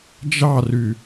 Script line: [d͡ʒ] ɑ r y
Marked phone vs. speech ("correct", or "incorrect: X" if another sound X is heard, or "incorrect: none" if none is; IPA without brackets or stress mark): correct